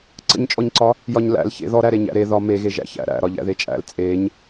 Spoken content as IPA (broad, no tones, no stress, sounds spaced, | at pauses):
ǀ ə̰ ɲ t͡ʃʼ ɔ ɲ ǀ ɒ | j ɒ ɲ l æ̰ l ç ḛ ð ɔ ɾ æ ɾ e ɲ æ̰ ɾ e ð ɒ m e ɣ e ʒ æ̰ ç æ̰ ɾ æ̰ ɾ ɒ ʎ æ̰ ð e t͡ʃʼ æ̰ l t͡sʼ e ɲ